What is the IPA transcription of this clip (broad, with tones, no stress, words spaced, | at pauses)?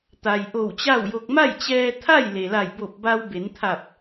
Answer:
t̪a˩j ʔo˧˩wt͡ɕa˥˨wjo˧k̚ ma˥˨jt͡ɕɛː˧t̪ʰa˥˨j le˩la˧˩jbo˧˩p̚ ba˧wbe˩˧nt̪ʰa˧˩p̚